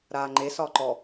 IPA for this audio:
ɾ aː ŋ͡ǃ e s ɒ ǃ ɔ

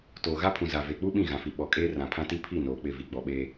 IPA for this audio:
t oː˨ ɣ a˦ pʰ ũ˨ z a˨ v e˨ k͡p u˦ ɓ ĩ˦˨ ɣ ã˨ f i˨ ɓ ɔ˨ kʼ eː˦ r ã˨ pʰ ã˦ t i˦ pʰ i˦˨ n oː˨ k͡p ɪ˦˨ v i˨ ɡ͡b ɔ˨ ɓ eː˦

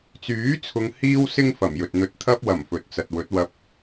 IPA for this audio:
t͡s yː˨˥ t͡sʰ ʊ˨˧ ŋ h iː˥ w s ɪ˥ ŋ f ɐ˨˩ m j ɵ˨ t̚ n̪ ɵ˧ t̚ t̪ʰ ɐ˥ p̚ w ɐ˨˩ m f ɵ˨ t̚ t͡s ɐ˨ t̚ w ɵ˨˥ t̚ w ɐ˧ p̚

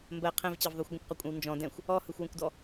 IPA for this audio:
m b ɜ qʰ ɛ̃ v t͡ɕ ɜ v ðˤ u xʷ ɡʷ ə̃ kʷ q ɔ kʷʼ ə̃ w n d͡ʒ ɔ̃ d ɛ̃ xʷ | ɔ h ɯ xʷ w ə̃ kʷ d ɔ

